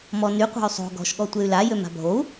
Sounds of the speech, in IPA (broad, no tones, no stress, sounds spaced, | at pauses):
m ɔ n y qʷ a̤ y̯ sˤ o̤ ɡ ɔ̤ ʃ ɠ ɔ tʷ e y̯ l a j ø m a̤ bʱ o u̯